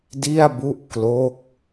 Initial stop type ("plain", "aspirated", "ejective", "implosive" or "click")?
plain